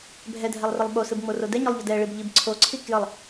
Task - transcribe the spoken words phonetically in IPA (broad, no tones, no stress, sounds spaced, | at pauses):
bʱ ɛ dʱ ɛ lˠ r ə lˠ ɓ o s ɯ b ŋ͡m o r o d ɛ ɲ o lˠ ʎ ə d ɛ ɭ i b ʎ i b ǀʰ o ǀʰ i k j ə lˠ